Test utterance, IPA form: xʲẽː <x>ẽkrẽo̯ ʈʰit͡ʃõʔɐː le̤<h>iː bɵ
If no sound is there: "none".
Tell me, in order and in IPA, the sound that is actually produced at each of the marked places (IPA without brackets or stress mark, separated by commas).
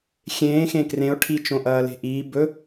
x, ʔ